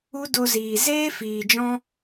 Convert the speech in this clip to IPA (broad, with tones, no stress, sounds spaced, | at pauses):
u˦ d o˧ z iː˨ z eː˦ f iː˨ d͡ʒ ɔ̃˧